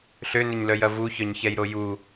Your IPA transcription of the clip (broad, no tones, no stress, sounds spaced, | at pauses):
ɬ ø n ʏ ɲ l œ j ɐ v u ç œ ɲ ç ɛ j ɾ o j u